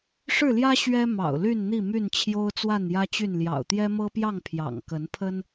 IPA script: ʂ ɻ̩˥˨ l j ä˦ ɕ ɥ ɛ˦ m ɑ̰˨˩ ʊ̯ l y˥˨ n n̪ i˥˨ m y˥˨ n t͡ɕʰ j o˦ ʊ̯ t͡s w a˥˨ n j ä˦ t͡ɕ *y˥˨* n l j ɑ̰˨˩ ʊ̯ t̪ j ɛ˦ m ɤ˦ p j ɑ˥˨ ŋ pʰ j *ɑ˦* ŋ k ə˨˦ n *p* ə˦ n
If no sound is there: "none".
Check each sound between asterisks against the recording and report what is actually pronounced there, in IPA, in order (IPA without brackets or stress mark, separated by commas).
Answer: y˥˨, ɑ̰˨˩, pʰ